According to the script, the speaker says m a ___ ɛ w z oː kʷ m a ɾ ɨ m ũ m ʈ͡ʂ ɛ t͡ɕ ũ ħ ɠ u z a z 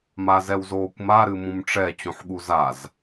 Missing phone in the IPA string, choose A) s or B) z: B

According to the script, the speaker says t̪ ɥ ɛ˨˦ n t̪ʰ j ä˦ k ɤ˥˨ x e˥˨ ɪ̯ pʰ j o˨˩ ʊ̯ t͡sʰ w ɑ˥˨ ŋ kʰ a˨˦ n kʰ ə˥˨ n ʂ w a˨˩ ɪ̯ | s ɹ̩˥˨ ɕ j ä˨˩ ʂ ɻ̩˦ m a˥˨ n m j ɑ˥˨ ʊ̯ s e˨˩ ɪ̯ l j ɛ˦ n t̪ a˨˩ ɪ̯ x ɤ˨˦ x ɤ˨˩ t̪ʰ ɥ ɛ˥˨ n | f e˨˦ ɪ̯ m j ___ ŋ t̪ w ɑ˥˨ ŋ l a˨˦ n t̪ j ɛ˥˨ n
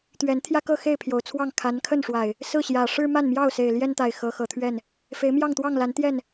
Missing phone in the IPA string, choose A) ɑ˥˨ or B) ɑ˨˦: A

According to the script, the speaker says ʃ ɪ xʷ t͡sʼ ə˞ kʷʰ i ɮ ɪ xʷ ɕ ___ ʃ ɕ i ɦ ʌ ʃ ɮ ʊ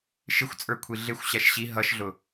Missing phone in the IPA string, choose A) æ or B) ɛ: A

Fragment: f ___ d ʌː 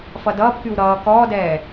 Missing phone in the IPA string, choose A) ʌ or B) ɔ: A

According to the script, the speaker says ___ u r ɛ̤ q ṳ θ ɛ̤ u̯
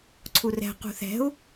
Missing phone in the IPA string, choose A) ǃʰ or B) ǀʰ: B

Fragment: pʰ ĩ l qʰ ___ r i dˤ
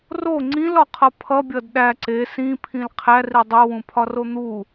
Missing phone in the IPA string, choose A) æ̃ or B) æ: B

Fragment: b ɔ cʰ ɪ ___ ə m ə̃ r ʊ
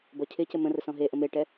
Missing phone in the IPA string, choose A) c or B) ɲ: A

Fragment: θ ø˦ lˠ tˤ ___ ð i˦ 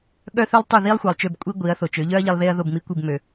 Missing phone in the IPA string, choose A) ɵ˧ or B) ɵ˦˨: B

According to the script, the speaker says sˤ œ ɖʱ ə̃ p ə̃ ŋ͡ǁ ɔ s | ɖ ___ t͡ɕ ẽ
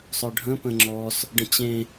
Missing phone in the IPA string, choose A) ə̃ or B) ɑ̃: A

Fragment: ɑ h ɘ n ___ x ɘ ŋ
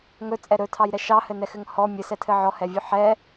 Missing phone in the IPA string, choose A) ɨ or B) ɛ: B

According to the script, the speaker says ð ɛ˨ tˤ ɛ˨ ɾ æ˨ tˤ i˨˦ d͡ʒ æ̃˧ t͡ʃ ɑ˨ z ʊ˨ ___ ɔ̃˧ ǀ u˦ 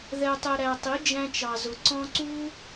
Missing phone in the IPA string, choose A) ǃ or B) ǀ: B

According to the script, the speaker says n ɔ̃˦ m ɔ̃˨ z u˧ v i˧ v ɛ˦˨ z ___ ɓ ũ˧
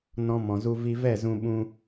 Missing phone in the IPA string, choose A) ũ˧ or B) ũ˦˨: A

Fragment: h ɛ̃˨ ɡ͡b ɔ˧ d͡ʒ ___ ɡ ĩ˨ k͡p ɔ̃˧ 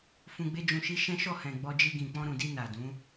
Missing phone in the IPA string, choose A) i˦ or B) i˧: B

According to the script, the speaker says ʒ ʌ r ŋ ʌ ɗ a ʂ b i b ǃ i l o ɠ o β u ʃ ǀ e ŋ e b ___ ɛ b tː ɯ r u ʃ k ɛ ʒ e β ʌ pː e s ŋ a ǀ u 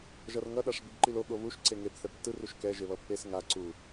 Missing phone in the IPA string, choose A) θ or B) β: A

